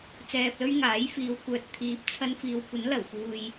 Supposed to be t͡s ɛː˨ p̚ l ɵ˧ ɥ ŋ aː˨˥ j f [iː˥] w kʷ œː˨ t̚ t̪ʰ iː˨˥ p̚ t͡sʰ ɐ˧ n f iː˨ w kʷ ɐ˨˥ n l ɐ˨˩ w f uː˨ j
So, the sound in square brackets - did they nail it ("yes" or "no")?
no